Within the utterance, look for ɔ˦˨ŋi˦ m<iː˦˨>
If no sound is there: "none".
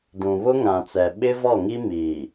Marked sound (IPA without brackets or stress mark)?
iː˨